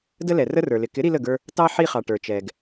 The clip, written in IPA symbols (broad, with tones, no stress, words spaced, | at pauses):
də˦lɛ˨rə˦rə˞˨ lɪ˨ kɪ˨˦ ɾi˦lə˦˨ɡə˞˦ | tɑ˦ ħi˦χɑ˨ʈə˞˨t͡ʃɛ˨ɡ